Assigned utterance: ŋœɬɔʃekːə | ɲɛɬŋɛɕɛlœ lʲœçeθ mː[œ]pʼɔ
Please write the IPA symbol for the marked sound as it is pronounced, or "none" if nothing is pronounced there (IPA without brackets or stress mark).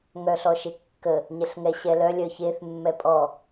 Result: ɛ